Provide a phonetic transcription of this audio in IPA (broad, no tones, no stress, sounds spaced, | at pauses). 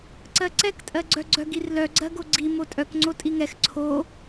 ǀ ɜ ǀ ɛ k tʼ ɜ ɡ͡ǀ œ ɡ͡ǀ œ ɡ i r l œ ɡ͡ǀ ɜ ɡ o ɡ͡ǀ i m o tʼ œ k ŋ͡ǀ o tʼ i ŋ ɛ x ǀʰ o